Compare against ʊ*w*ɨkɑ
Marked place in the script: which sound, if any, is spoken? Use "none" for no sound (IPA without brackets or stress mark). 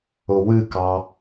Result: w